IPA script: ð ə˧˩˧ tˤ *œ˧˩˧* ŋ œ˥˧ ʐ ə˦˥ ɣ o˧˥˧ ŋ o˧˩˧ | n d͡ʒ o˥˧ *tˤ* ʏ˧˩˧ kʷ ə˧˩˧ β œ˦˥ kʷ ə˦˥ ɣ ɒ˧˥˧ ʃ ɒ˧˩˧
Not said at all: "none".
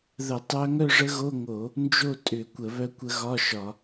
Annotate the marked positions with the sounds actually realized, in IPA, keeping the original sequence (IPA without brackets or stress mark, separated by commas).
œ˦˥, tʼ